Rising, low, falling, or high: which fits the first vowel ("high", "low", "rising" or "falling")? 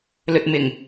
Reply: low